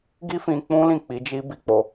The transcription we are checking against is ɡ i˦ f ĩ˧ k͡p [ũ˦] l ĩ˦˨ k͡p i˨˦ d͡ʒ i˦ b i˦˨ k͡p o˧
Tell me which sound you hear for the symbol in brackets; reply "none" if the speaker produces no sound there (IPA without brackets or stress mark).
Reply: ũ˦